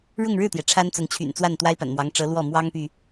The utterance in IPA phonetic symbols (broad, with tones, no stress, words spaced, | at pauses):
ɻʊ˥˧ŋɻɻ̩˥˩t̪jɛ˩ ʈ͡ʂʰa˥nt͡sʊ˧˥ŋ t͡ɕʰy̰˨˩nt͡swa˥˩n t̪wa˥ɪ̯pa̰˨˩nmwɑ˧˥ŋ ʈ͡ʂɤ˧˥ lwɔ˥˩mwɑ˥ŋpy˨